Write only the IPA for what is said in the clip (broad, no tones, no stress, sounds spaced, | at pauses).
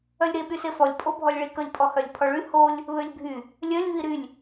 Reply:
œ lʲ ɾ e ɓ y s e f ɔ lʲ pʼ o bʱ ɔ lʲ ɭ i k ə lʲ pʼ ɔ h œ lʲ pʰ ɔ ɭ y h o lʲ | β ø lʲ bʱ y | lʲ œ lʲ β i ɾ y lʲ